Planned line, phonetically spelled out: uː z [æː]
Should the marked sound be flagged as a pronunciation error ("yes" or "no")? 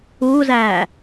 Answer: no